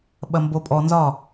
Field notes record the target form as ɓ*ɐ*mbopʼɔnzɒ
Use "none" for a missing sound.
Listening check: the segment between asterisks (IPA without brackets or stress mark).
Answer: ɐ